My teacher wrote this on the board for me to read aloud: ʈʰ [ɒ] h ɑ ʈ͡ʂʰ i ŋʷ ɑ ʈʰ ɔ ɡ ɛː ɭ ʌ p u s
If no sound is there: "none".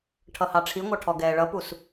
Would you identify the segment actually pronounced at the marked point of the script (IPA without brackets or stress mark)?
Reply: ʌ